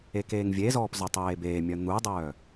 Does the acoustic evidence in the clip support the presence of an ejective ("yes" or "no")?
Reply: no